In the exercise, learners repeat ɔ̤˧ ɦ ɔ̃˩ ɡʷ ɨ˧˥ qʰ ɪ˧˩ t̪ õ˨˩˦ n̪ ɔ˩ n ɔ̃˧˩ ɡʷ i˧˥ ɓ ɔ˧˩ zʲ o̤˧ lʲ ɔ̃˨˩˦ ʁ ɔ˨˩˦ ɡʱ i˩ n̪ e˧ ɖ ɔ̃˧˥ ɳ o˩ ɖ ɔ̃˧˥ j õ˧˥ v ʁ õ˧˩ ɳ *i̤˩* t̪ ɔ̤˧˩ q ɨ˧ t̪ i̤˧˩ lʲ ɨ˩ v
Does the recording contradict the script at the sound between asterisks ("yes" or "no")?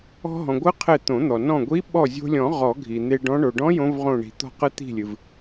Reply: no